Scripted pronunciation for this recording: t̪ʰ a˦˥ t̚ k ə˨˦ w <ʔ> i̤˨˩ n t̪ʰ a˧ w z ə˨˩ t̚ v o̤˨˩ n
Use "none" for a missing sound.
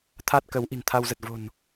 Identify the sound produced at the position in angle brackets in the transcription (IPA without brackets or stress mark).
ʔ